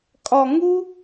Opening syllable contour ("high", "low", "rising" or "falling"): high